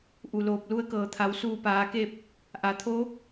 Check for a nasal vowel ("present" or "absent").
absent